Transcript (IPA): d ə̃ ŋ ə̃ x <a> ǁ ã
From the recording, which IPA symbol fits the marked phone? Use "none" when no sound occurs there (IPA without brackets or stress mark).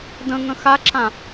a